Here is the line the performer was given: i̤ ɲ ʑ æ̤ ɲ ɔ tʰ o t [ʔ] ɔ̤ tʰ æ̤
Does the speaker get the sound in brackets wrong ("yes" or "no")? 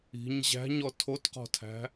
yes